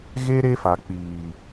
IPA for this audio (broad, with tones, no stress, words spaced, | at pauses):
ɣe˦ ɾe˦fa˨k͡piː˨